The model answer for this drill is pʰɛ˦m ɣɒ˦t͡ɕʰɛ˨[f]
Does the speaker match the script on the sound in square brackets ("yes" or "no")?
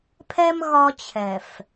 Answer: yes